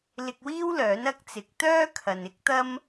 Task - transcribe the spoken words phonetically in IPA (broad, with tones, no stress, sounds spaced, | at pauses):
l ɪ˧ k̚ w iː˥ w l œː˨˥ n ɐ˥ k̚ t͡s ɪ˨˥ k̚ t̪ œː˥ kʰ ɐ˨ n ɪ˥ k̚ t̪ ɐ˥ m